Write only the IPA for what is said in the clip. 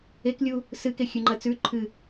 e k lʲ u | s ɨ k e xʲ ʉ ŋ͡ǃ ɐ t͡s ʉ ǃʰ ɨ

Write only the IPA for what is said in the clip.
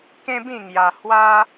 k ẽ˦ b ĩ˥˧ ŋ j a˧ h w a˦

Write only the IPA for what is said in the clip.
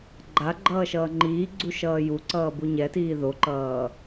ɡ͡ǃ a ɡ͡ǃ ʌː ʃ ʌː ŋ͡ǃ iː ɡ͡ǀ u ʃ ʌː j u ǀ ʌː b u ɲ ɛ t iː ð o ǃ ʌː

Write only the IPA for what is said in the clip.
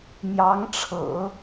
m j ɑ˧˥ ŋ ʈ͡ʂʰ ɤ̰˨˩˦

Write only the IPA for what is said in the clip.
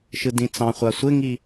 ʃ ɯ d ĩ t͡s ɑ̃ χʷ a sʷ ɪ ŋ i

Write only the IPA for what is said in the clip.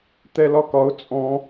t̪ ɛ l ɒ k ɒ ʊ̯ t͡sʼ ɔ̃

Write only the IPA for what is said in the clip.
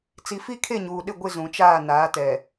t͡s i˨ f i˦ kʰ e˦˨ ɲ uː˨ ɗ ɪ˦˨ ɡʷ ɪ˦˨ z ũ˨ t͡ʃ aː˦˨ n aː˨˦ t ɛ˨

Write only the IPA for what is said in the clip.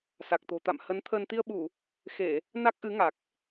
s a˨˩ k̚ t̪ o̤˨˩ t̪ a̰˧˨ m h ə˨˦ n t̪ʰ ə˧ n t̪ i˧ ə̯ ɓ u˧˩˨ | x e˧˩˨ | n a˦˥ k̚ ʔ ɨ˨˦ ŋ a˨˩ k̚

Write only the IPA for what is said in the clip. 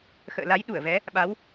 x ə̰ː˧˨ l a˨˦ j ɗ u˧˩ ə̯ v ɛ˨˦ | ɓ a˨˦ w

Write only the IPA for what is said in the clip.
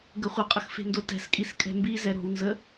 ɡ ə χʷ ə qʼ ə x f e̤ n d o t ɛ̤ s kʼ i s kʼ ɛ̤ m b i z ɛ ɾ o̤ w n z ə

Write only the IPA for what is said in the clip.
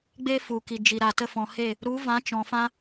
ɡ͡b e˦ f u˨ k i˨ d͡ʒ i˨ ɾ a˨ t ə˧ f ɔ̃˨ h e˦˨ | ɾ u˨˦ v ã˨˦ t͡ʃ ɔ̃˨ f ã˧

